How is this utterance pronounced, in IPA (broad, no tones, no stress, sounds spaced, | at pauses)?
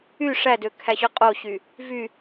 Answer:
y ʂ æ d ø kʰ æ ɕ ø qʼ o ɕ y | v y